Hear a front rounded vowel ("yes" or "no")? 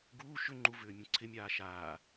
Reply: yes